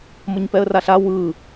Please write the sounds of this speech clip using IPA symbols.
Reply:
m ʌ ɲ p ɛ ə̯ r a ɬ a w ɯ

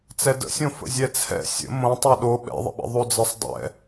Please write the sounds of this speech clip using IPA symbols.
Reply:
t͡s ɛ d ə̰ sʲ õ f ə̰ zʲ ɛ t͡sʰ ɛ̰ sʲ ə̰ m õ tˤ ɛ ɗ o ɓ ɛ̰ ðˤ ə̰ ɓ ə̰ ðˤ o d͡z ɪ sˤ dˤ ɛ̰

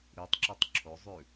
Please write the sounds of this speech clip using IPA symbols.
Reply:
ɾ i tˤ ǁ ʌ tˤ ǁʰ o zˤ ʉ

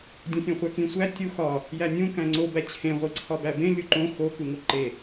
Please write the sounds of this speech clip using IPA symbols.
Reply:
dʲ õ sʲ õ χʷ æ k ĩ sʷ æ tʲ u x ɒ | j æ nʲ ũ k æ̃ ŋ͡ǀ o b æ t͡ɕʰ ẽ ʁʷ i ǀʰ ɒ b æ b ẽ lʲ u ǃ õ x o k u ŋ o ǃ e

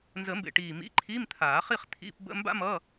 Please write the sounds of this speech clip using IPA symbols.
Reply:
n z ə˨˩˦ m b ḛ˨˩ ʈ iː˨˩ m ḭ˧˥˧ ǃʰ iː˧˥˧ m t̪ʰ aː˨˩˦ χ i˥˧ χ t̪ʰ ḭ˧˥˧ p b ə̰˧˥˧ m b a̰˥ m ʌː˧˥˧

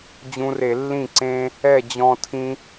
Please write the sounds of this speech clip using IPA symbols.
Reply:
d͡ʑ ũ˧ r e˧˩˧ lː ĩ˥˩ ǀ ẽ˧ | ɛ˥˩ d͡ʑ ɔ̃˧ tʰ ĩ˧

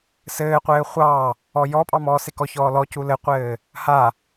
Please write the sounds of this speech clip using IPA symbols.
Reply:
s ɘː qʷ ɘː χʷ ɑ | ɔ j ɔ pʼ ɑ m ɔː s e k ɔ ç ɔː l ɔ c u l ɘ qʷ ɘː | h a

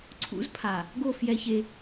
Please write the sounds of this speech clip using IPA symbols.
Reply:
ǀʰ ṵ˦ z pʰ a˨ | ɡ o˦˨ f j ɛ˦ ç e˦

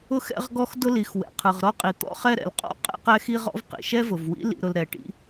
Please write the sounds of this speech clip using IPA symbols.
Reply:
ʊ˥ x ɛ̰˥ ʁ ɡ ɔ˥ x d ʊ˥ l i˩ x w ɛ̰˩ qʰ ɯ˩ ʁ ɾ ɔ˥ qʼ i˩ t̪ ɔ̰˥ χ ɛ˥ ɾ ɛ̰˩ l qʼ ɔ̰˥ qʼ ɛ̰˥ q ɛ˥ x i˥ ʁ ɔ̰˥ v q ḭ˩ ʃ ɛ˥ v ʊ˩ v w ḭ˥ l ḭ˥ ɾ ʊ˥ l ɾ ɛ˩ ʈ ḭ˥

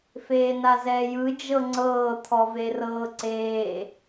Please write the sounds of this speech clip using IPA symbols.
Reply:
f eː n a z ɛː j ɯ d͡ʒ ɤ ŋ͡ǀ ɤː t̪ʰ ɔ v e r ɤː ǀ eː

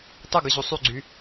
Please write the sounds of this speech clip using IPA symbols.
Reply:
tˤ ɯ ɡ ɯ ʑ u sˤ y ɡ͡ǀ y

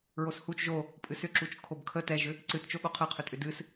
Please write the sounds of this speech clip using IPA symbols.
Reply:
ɹ o s h u t͡ʃ ʒ o | pʼ ɨ s ʏ ǁ u t͡ʃ kʰ o b kʰ ə t ɛ ʒ ʏ | ǀ ɨ t t͡ʃ o ɠ o qʰ ə qʰ ʏ tʼ ʏ d ɨ s

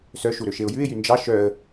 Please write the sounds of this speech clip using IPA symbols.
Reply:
s œ ʃ u ɾ ø ʃ e ʊ̯ j ʉ ɪ̯ j y n d͡ʒ ɑ ʃ œ ə̯

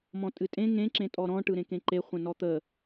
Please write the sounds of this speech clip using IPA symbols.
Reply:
m ɔ̃ tʼ ɨ tʼ ẽ ŋ ẽ ǁ ẽ tʼ ɔ ɾ ɔ̃ ʈ ɯ ɾ ẽ k ẽ ǃ e χʷ ə̃ n ɔ t̪ ə

